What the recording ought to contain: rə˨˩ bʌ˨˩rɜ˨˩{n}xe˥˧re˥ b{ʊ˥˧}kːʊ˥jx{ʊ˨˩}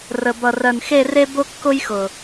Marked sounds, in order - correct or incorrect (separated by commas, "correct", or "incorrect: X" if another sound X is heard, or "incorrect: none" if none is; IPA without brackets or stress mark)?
correct, incorrect: ʊ˥, correct